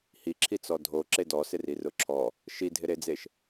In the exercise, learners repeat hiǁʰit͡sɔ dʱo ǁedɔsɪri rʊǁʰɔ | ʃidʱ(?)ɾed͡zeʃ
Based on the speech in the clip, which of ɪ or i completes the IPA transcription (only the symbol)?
ɪ